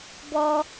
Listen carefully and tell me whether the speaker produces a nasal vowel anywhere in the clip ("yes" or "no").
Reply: no